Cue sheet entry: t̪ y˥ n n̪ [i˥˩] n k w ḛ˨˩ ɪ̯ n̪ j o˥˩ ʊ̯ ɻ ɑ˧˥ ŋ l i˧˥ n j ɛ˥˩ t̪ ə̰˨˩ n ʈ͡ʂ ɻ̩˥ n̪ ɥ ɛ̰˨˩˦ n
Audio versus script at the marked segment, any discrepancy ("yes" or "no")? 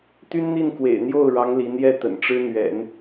no